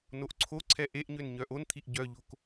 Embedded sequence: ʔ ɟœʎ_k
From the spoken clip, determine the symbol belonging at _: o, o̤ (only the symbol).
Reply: o̤